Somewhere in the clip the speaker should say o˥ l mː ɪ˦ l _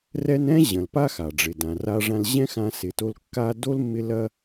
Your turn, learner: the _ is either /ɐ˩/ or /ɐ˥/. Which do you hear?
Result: ɐ˥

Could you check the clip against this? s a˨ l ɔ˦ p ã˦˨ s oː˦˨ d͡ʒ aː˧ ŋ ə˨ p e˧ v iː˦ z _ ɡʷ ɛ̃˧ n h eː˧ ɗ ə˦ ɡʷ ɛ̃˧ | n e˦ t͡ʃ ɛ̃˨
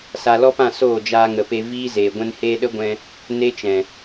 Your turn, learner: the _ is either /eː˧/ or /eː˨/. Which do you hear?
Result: eː˨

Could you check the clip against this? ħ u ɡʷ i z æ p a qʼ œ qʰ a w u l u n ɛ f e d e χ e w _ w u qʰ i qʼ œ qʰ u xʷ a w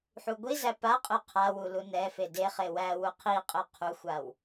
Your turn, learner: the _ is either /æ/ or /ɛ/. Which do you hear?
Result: æ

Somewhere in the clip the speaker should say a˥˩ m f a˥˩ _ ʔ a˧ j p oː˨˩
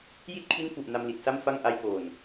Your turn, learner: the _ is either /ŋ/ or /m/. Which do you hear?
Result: ŋ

